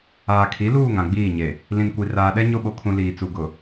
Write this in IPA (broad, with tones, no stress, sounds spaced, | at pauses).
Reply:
aː˨ kʰ i˨˦ l uː˦˨ ŋ ã˨ ɡ͡b iː˦˨ ɲ e˨ | l ĩ˨ n kʷ i˨ r aː˨ ɗ ɛ˦ ɲ o˦ ɓ o˨ kʰ ũ˨ l iː˨ t͡s u˨ ɡ ʊ˨